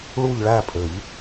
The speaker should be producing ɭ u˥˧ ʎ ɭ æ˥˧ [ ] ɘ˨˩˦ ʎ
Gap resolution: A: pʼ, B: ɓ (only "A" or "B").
A